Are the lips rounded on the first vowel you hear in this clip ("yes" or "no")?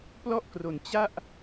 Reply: yes